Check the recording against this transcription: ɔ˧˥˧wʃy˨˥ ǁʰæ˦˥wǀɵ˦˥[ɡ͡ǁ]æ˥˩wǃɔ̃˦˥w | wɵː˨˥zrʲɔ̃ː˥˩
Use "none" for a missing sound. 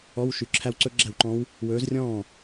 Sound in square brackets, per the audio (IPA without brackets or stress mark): ɡ͡ǁ